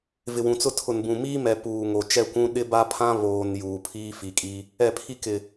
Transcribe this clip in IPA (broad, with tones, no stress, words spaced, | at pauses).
vɪ˨wũ˨t͡sʊ˦ tʰʊ˨nbũ˨miː˦ mɛ˨ puː˨ŋo˨ t͡ʃɛ˦˨kʷũ˦ ɗɪ˦ ba˦ pʰã˦ βoː˨n juː˨pʰiː˦fi˨kʼi˦ | ɛ˦˨pʰi˦ kɪ˨